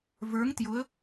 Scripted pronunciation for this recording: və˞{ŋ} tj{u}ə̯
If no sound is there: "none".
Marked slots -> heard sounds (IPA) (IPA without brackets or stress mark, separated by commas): ŋ, ʊ